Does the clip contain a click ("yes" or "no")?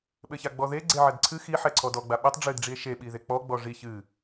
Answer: yes